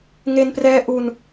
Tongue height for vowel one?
mid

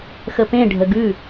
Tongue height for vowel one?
mid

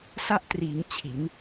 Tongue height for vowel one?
low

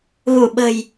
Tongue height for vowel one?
high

